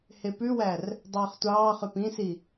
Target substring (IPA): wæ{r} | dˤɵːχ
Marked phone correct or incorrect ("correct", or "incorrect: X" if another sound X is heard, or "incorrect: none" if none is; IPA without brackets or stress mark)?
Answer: correct